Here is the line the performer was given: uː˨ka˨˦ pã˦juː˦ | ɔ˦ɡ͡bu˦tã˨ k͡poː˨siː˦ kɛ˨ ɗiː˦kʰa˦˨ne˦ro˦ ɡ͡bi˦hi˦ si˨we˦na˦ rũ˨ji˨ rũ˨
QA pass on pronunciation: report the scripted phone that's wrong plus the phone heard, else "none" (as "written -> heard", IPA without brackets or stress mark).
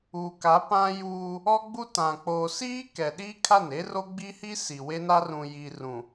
none